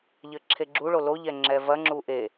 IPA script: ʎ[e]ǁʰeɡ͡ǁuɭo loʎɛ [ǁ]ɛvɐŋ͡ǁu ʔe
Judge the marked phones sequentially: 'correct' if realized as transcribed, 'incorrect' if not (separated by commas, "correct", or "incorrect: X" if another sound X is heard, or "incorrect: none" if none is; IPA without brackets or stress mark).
incorrect: ɘ, incorrect: ŋ͡ǁ